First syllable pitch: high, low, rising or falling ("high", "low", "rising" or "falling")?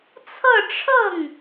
falling